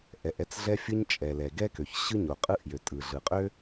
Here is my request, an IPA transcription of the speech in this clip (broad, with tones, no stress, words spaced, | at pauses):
ʔɛ˩ʔɛ˥t͡sɮɛ˥fʲɯ˥ɲ t͡ʃʼɛ˩lɛ˩ ɡɛ˥kø˩çɕɯ˥ ɲo˩qʼɯ˥ʔ jø˩tʼɯ˩ɮɯ˩qʼø˥